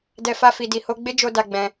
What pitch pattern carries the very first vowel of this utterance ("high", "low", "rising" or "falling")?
low